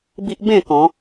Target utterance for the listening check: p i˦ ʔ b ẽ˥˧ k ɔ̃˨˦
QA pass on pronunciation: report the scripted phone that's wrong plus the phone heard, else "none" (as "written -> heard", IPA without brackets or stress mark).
p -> b